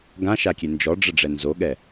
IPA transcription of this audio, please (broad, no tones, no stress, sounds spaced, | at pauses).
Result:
ɡ ã ʃ a kʲ e n d͡ʒ ɔ ɖ͡ʐ ə ɖ͡ʐ ɛ n z o ɠ ɛ